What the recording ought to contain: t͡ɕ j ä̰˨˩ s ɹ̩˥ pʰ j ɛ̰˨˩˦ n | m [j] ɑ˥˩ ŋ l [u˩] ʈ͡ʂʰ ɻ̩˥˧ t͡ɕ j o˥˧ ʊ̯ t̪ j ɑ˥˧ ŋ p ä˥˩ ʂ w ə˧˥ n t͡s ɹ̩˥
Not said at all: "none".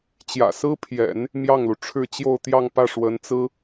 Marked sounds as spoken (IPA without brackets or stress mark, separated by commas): j, u˩